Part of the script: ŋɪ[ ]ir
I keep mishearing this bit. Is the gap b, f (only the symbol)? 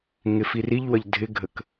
f